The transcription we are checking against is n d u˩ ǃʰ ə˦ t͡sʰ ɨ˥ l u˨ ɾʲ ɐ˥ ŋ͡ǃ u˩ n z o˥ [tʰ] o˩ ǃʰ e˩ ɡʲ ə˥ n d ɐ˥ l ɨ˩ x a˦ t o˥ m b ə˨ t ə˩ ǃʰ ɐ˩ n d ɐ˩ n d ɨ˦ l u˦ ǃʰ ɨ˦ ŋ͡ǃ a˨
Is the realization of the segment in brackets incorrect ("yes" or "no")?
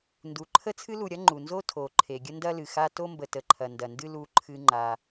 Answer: no